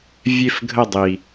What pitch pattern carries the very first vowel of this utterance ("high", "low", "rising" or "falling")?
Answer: falling